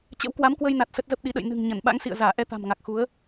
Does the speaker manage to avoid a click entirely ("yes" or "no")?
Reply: yes